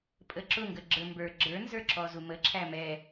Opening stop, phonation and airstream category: ejective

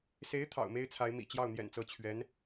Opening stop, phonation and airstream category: aspirated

